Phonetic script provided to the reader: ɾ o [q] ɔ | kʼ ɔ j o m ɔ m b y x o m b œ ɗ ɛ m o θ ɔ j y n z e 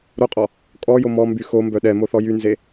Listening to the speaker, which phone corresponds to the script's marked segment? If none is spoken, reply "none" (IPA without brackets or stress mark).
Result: qʼ